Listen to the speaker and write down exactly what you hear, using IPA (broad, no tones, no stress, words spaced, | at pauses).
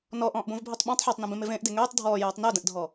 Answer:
nɔʔɔ̃ːʔbõvbʱytˤ ɓõtˤ ħotˤnũbẽmev ẽːʔde ŋøːtˤ dʱɔːjøːtˤ nœdə̃ʔdʱɔ